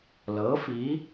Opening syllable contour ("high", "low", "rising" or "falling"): rising